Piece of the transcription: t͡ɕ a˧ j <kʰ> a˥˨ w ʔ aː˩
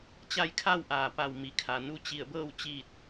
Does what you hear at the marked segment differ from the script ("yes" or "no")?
no